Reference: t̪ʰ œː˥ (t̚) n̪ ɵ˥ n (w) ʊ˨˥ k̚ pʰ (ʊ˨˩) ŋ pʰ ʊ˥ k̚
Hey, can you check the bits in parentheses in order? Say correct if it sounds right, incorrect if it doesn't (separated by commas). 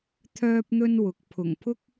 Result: incorrect, correct, correct